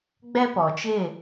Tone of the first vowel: high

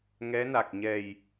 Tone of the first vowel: rising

